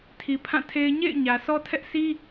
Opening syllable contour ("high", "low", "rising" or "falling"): low